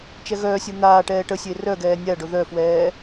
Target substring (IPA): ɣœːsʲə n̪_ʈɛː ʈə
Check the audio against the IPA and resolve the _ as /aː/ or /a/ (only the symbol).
aː